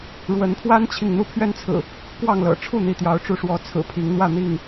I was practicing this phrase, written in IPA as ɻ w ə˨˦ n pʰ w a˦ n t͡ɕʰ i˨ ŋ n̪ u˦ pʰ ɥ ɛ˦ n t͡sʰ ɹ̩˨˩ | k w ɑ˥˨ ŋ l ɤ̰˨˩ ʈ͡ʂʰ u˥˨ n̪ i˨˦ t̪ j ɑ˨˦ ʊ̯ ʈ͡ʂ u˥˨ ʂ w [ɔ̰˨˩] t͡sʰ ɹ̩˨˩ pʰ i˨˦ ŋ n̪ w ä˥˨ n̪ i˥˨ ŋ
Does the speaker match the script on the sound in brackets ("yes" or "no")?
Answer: no